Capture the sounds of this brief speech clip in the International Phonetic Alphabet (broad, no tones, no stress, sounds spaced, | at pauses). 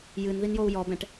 j ɨ n ð i n j o u̯ j ɔ b ɛ̃ ʈ